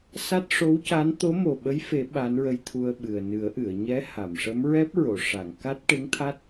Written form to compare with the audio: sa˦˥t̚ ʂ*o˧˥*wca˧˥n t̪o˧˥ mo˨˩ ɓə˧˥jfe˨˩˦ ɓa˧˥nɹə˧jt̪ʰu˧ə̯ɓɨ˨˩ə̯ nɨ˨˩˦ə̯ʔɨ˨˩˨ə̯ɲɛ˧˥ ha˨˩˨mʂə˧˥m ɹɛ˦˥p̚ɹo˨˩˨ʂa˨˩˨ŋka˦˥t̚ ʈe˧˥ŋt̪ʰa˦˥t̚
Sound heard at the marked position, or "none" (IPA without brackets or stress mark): o˧˥